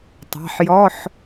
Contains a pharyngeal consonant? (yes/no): yes